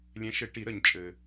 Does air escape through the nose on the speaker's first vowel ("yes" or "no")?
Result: yes